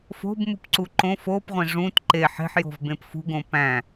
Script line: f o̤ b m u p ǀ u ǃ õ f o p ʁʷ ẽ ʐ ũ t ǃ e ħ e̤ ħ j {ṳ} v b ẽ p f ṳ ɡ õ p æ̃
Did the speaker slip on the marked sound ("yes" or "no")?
yes